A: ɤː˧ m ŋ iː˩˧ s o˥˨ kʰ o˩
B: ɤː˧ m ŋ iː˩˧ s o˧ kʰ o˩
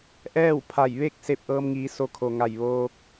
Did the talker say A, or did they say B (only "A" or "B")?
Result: B